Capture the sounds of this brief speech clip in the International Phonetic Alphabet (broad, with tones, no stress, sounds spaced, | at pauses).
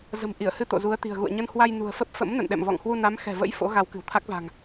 z ə̤˨˩ m ʔ i˧˩ ə̯ h ɨ˧ t̪ o̰˧˨ z u˨˦ ə̯ t̪ i̤˨˩ ə̯ ɣ ṵ˧˨ ə̯ ɲ ə˧ n h w a˧ j n ṳ˨˩ ə̯ f ə˦˥ p̚ f ə̰˧˥ m n ə̰˧˨ n ɗ ɛ̰˧˨ m v ɔ̰˧˨ ŋ h w u˧ n a˨˦ m x ɛ̤˨˩ v ə̰˧˥ j f o̰˧˥ ɣ a˨˦ w k ɨ̤˨˩ w t̪ʰ a˦˥ k̚ v a̤˨˩ ŋ